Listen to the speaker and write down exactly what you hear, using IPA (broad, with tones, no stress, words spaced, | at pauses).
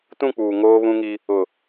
tũ˦˨k͡puː˨ ŋoː˦βũ˦ŋi˦ | ʊ˨